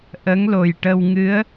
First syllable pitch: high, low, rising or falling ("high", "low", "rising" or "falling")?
rising